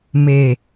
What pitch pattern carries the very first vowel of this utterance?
low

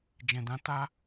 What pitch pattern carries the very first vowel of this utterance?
low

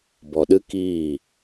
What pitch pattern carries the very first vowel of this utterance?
low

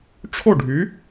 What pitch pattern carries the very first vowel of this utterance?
falling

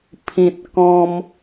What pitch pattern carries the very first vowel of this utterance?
low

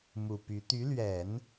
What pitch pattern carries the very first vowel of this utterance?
low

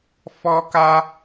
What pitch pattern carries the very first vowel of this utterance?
high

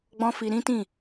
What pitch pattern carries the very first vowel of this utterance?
high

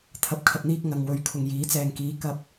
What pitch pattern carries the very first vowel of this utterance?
rising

